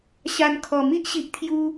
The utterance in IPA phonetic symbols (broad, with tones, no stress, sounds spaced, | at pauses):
ɕ a˧ n kʰ ɔ˨˩ m i˦ ʔ ɕ i˨ ʔ t̪ʰ j u˧